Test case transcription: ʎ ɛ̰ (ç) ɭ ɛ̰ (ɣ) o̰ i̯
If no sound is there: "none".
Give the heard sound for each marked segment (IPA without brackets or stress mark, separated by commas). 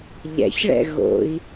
ç, ɣ